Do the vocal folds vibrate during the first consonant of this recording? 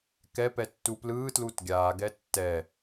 no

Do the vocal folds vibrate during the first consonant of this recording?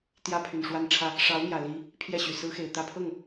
no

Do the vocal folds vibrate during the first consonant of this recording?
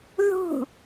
yes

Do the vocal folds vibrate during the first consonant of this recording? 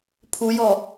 no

